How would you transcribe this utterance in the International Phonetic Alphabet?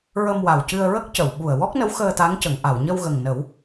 ɹ ə˧ m w a˨˩ w c ɨ˧ ə̯ ɹ ə˦˥ k̚ c ə˨˩˨ w ɓ u˨˩ ə̯ w ɔ˦˥ k̚ n ə˧˥ w x əː˧ t̪ a˧˥ ŋ c ə˨˩˨ ŋ ʔ a˨˩˨ w ɲ ə˧ w ɣ ə˨˩ ŋ n ə˨˩˦ w

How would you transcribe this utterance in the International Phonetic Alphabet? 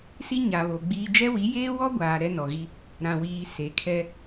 s i˦ ɲ a˨ β o˨ ɡ͡b iː˦ d͡ʒ ɛ˦ w i˨˦ j eː˦ w ɔ˦ ɡʷ aː˨ ɾ ɛ˦ n ɔ˨ ɣ i˦ | ɾ ã˨ w iː˨ s e˨˦ kʰ ɛ˦

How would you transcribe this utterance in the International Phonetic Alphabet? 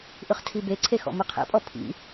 ʔ ɯ χ tʰ i b e ǀʰ e x ɔ̰ m ɯ qʰ ḛ pʼ ɔ pʰ ḭ

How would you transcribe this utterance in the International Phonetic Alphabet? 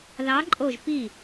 ð ɑ˧˥ ǃʼ o˥˧ ʒ p i˥˩

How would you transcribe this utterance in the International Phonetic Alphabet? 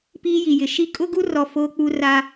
p iː˦ j i˨ j ɪ˨ ʃ i˦ kʼ ʊ˦ ɡ u˦ r ɔ˨ f oː˦ k͡p u˦ r a˦

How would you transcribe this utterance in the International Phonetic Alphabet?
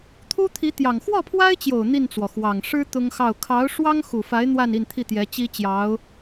t̪ʰ u˥ t̪ʰ i˧˥ t̪ j ɑ˨˩ ŋ x w ɔ˥˩ pʰ w a˥ ɪ̯ t͡ɕ j o˨˩ ʊ̯ n̪ i˥˩ n t͡s w ɔ˩ x w ɑ˨˩ ŋ ʂ ɻ̩˥ t̪ ʊ˥ ŋ x ɑ˥˩ ʊ̯ kʰ ɑ˧˥ ʊ̯ ʂ w ɑ˥ ŋ x u˨˩ f a˧˥ ɪ̯ n̪ w a˥˧ n i˥˧ n t̪ʰ i˥˩ t̪ j ɛ˧˥ t͡ɕ i˥ t͡ɕ j ɑ˧˥ ʊ̯

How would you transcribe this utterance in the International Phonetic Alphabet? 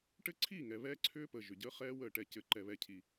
ʈ ɘ˦ ǀʰ i˦˨ ŋ ɛ˨ β ɛː˦ ǀʰ ʏː˦ p əː˨ ʒ ʏ˨ ɟ əː˦ χ ɛː˦ w əː˦˨ ʈ ɛ˦˨ c ɘ˦˨ ǃ ɛ˦ β ɛ˦ cʰ i˦

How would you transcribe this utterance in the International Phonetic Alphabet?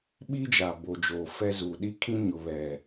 ɓ i˦ d͡ʒ a˨ b o˨ d͡ʒ oː˨ f ɛ˦ z uː˨ ɗ i˦ kʰ ĩ˦ ɲ ʊ˨ β ɛ˨

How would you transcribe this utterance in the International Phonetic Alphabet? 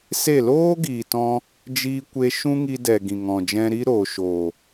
s e˦˨ l oː˦ ɡ iː˨ t ɔ̃˧ | d͡ʒ iː˧ kʷ e˧ ʃ ũ˦ ŋ i˧ d ɛ˨ ɡ ĩ˨ ŋ ɔ̃˨ d͡ʒ ɛ̃˧ ɾ i˦ ɾ oː˨ ʃ oː˨

